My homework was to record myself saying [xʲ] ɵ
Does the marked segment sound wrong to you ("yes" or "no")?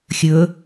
no